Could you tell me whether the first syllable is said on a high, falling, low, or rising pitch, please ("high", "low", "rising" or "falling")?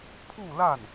falling